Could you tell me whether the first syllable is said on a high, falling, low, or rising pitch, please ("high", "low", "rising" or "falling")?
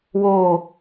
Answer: falling